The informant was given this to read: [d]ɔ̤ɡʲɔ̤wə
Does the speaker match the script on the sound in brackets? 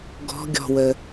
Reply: no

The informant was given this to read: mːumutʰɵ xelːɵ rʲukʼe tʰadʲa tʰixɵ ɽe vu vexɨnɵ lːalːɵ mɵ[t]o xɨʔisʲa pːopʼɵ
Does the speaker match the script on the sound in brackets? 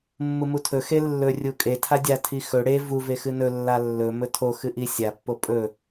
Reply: no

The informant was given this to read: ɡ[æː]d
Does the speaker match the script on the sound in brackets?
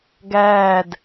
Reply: yes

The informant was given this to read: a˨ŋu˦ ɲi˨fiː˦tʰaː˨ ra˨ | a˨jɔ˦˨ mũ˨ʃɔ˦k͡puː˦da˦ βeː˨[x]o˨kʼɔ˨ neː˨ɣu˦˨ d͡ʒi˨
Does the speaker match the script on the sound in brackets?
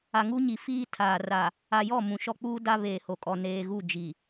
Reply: no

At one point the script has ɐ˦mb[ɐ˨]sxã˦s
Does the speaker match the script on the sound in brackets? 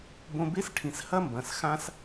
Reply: no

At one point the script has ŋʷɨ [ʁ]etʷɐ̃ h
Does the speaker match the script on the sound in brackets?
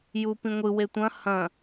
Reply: no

